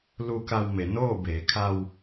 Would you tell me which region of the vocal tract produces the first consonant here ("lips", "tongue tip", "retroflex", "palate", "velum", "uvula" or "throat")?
tongue tip